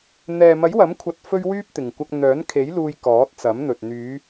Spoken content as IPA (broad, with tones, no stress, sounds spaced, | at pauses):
n̪ ɛː˨ m ɐ˨˥ j w ɐ˨˥ m kʷʰ ɐ˧ t̚ f ɵ˥ ɥ w yː˥ p̚ t̪ ɪ˨ ŋ kʷ ɐ˧ k̚ n̪ œː˨˥ n kʰ e˨˥ j l uː˧ j k ɔː˨˥ t̚ t͡s ɐ˨˥ m n̪ ɵ˨ t̚ n̪ yː˨˧